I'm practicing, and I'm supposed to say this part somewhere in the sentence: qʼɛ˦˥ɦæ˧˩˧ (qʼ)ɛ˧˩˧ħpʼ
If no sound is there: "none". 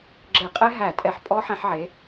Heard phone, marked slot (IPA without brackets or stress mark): tʼ